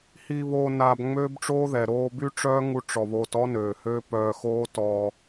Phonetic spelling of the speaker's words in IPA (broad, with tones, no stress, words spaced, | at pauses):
hi˧βoː˧ naː˧bŋ͡møː˦bʈ͡ʂoː˦ðɛ˨ ɾoː˧by˦ ʈ͡ʂœː˦ŋu˧ ʈ͡ʂɔ˨βoː˧tɔ˦nøː˨ høː˦pœː˧xoː˦tɔː˧